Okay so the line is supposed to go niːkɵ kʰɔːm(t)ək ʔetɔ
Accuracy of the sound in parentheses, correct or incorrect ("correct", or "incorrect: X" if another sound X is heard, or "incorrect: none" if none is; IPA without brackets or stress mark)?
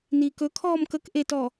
incorrect: k